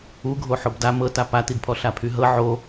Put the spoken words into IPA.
uɡʱo ħobda mɤta patidpʰɔ ɬapʰyɦɤ ʕo

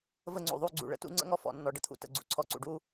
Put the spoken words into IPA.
və˥˧ŋ͡ǀṵ˨˩ðˤu˥˧ ɡ͡ǀṵ˨˩ɭə̰˦˥tṵ˥˧ ŋ͡ǀə̰˥˧ŋɔ˥˧fɔ̰˨˩nːɔ˨˩ ɖə˩˥t̪ʰṵ˨˩tə̰˨˩ɡ͡ǀṵ˩˥ ǀʰɔ˨˩ǀṵ˨˩ɖu˦˥

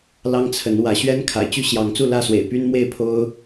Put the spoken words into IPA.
lɑ˦ŋt͡sʰə˨˦n wä˨˦ ɕɥɛ˦nkʰa̰˨˩ɪ̯t͡ɕy˦ ɕjɑ˨˦ŋt͡su˥˨lä˥˨swḛ˨˩ɪ̯ py˦nmwe˥˨ɪ̯pʰo˦ʊ̯

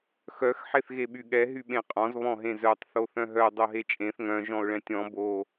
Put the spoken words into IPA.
xœx ħeθɣeɓyɠɛ ɦyɓẽqʼɔ̃z βɔ̃ɦẽzœtˤ θoθœ̃ɦœ dˤoɦet͡ʃʼẽθ ŋœ̃ ʒɔ̃ʊ̯ɭɛ̃tʲɔ̃ bo

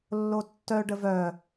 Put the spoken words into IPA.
lːotːœ ɖəvœ

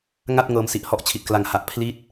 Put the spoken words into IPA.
ŋa˥˩t̚ ŋɤː˧msi˨˩ʔhɔ˥˩ʔt͡ɕʰi˨˩t̚ kla˨˩ŋha˨˩ʔ pʰli˦˥t̚

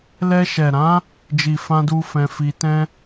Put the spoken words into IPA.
lɛ˧ʃɛ˨ ɾã˨˦ | d͡ʒi˨fã˧du˧ fɛ̃˧fi˧ tɛ̃˦

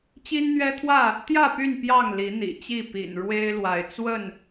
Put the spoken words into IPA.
t͡ɕi˦nn̪ɥɛ˦t̪ʰwä˥˨ | t̪jä˥˨py˥˨n pjɑ˥˨ŋli˨˦ n̪ḭ˨˩t͡ɕi˥˨ pḭ˨˩n ɻwe˦ɪ̯lwa˨˦ɪ̯ t͡swə˥˨n

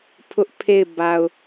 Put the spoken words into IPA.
pʰʊ˦ʔpʰe˦˨ɪ̯ ba˨ʊ̯

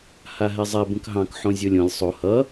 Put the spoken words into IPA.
haɦɛzˤɛ bə̃kɦɑ̃k ħõzʲolʲõlʲ sˤo hʌ

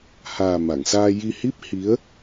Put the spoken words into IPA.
haː˨˩ ma˨˩˨ŋsaː˧ ji˧hi˦˥p̚ hi˧˥ə̯

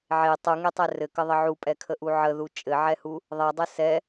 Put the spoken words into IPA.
ʕe tˤuŋetˤɛ rɘkəðˤə ʕupʼɛkʰəʔu ʕəðu t͡ʃʼɘʕɛhu | ðˤɛdˤɘ sɛ

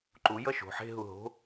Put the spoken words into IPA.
ǃu jʌʃo̤ ħe̤ɦu ɦo̤

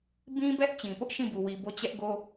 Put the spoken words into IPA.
bĩ˦bɛ˦ʔ t͡ɕĩ˨pʊ˦ʔʃĩ˦˨bu˨ wi˨bo˦˨ t͡ɕɛ˦ʔɡo˦

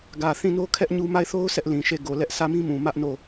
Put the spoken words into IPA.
ɡä˨θĩ˦˨no˦ kʰɛ˦ʔɲu˦ ma˦˨ɪ̯θo˦ʊ̯ sʰɛ˦ʔlĩ˨ʃe˦˨ ɡo˨ lɛ˦ʔ sʰä˦˨mĩ˦mũ˨ mä˦ʔno˦˨

